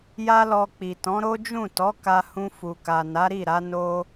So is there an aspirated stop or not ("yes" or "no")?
no